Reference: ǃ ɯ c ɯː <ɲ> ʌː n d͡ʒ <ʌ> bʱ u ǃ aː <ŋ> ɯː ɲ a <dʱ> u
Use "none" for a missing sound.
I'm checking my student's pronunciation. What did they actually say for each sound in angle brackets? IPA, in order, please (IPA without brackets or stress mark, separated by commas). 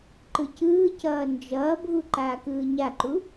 c, ʌː, k, ǃ